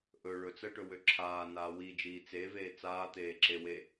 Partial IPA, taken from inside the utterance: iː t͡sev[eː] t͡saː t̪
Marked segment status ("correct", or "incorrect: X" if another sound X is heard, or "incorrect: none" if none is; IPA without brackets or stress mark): correct